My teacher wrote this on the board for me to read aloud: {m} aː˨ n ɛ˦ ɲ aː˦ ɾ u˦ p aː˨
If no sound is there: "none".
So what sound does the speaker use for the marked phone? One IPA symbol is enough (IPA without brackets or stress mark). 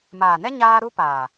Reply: m